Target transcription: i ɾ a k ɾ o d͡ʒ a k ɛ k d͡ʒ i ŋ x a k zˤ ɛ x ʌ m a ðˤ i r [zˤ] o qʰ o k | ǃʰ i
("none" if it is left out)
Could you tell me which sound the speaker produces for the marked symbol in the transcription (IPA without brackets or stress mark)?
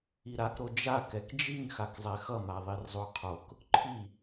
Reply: zˤ